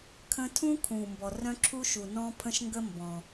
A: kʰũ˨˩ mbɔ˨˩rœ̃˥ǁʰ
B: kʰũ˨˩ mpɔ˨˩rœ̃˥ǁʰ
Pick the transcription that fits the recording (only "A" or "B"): A